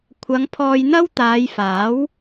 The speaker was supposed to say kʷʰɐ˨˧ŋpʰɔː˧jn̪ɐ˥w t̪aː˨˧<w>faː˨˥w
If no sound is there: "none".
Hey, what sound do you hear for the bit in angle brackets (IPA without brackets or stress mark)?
j